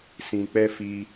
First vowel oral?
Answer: no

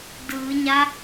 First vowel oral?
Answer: yes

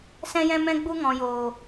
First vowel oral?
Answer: no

